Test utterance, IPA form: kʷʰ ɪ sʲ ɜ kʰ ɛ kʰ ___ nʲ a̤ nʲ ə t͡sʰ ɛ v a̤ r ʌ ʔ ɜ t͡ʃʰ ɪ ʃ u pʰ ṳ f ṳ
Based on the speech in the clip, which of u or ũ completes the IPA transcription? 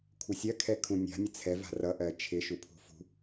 ũ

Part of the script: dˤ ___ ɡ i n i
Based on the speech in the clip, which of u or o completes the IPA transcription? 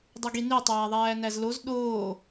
u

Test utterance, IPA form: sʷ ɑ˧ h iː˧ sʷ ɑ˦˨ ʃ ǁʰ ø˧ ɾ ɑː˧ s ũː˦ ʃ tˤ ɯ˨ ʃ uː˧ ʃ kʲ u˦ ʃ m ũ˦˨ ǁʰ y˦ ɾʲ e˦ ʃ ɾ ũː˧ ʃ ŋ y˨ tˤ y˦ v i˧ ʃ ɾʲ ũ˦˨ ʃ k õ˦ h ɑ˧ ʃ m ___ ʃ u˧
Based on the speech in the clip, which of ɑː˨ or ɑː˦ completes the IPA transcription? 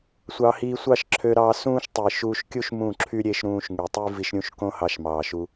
ɑː˨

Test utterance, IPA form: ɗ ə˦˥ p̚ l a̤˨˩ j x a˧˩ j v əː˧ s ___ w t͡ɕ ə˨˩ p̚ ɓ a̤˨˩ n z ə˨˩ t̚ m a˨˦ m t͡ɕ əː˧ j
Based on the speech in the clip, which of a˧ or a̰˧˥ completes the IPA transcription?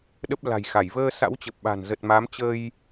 a̰˧˥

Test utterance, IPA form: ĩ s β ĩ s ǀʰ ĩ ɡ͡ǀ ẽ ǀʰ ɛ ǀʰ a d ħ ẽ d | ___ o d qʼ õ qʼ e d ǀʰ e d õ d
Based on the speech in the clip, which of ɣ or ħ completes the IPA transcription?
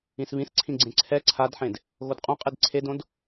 ɣ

